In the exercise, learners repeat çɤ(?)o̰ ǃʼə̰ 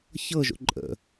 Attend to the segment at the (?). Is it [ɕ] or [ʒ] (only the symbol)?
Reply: ʒ